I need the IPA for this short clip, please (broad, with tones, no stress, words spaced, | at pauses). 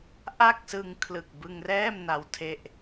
ʔa˥˩k̚sɯ˧ŋkʰlɯ˨˩k̚ bɯ˧ŋrɛː˥˩m na˧wtʰe˥˩ʔ